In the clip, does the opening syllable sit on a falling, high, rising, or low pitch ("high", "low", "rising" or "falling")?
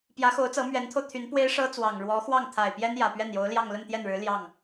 rising